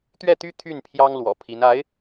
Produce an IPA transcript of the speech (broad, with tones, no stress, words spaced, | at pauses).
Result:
t̪ɥɛ˥˩t̪y˥ t̪ʰy˥˩n pʰjɑ˥ŋ lwɔ̰˨˩pʰi˧˥n a˧˥ɪ̯